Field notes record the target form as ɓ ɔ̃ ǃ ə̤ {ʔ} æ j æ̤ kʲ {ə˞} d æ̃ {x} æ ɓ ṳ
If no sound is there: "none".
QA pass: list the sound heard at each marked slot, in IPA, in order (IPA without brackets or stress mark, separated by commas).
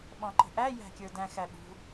ʔ, ə˞, x